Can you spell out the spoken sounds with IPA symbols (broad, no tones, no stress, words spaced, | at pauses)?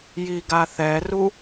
jiɡaθɛru